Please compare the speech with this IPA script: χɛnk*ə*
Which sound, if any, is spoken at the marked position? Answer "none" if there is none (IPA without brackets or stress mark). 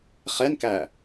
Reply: æ